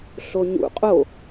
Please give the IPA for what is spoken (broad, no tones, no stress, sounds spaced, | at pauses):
ɬ o ɲ ṵ qʼ o